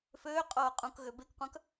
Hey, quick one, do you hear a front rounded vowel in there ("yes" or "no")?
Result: yes